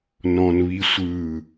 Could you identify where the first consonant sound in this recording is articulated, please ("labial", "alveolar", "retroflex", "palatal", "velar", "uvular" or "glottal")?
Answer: alveolar